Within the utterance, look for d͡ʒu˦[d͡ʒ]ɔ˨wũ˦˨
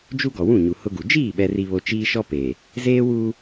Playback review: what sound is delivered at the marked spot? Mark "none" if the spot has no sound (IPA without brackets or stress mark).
ɡ